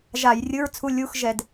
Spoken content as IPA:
ʒa˧˩˧jrʲɯ˧˥˧ɹt͡sʰu˧˥˧ lʲu˧˥˧xʒɛ˧˩˧d

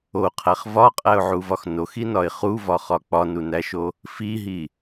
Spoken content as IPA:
oqʰæχ vɒqʼæʊ̯ʕuvɒx noxinɒɪ̯ χuvɒχɒ k͡pɒnunæʃo | fiɦi

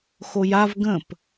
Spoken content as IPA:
xojav ɡə̃p

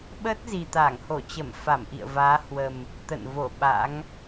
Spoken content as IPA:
ɓəː˦˥t̚ zi˨˩t̪aː˧˩ŋho˧˩ t͡ɕə˧˩mfa˧˩mʔḭ˧˨ə̯ vaː˨˦hwə˨˩m | t̪ə̰˧˨nvo˧˩ ɓa̰˧˥ŋ

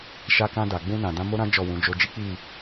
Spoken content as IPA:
ʃa˧ kã˧da˨ɡ͡bũ˧nã˨ dã˧mo˦ɾã˦ d͡ʒɔ˦˨wũ˨˦d͡ʒo˦ d͡ʒi˦k͡pi˦˨

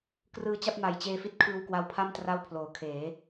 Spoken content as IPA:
krɯː˧t͡ɕa˥˩p̚ma˨˩j t͡ɕeː˧fi˦˥t̚ kʰɯː˧wkwa˧wpʰa˥˩m tra˥˩wpʰloː˩˦kʰeː˩˦

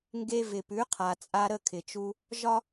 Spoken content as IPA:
ŋɡe˧ vɪ˩pʉ˩˥qʰa˩t͡sʼa˧ ɾə˥˩kʰɪ˩t͡ʃu˧ | ʒɒ˥

